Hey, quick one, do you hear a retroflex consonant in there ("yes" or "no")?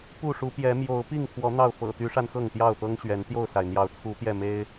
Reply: yes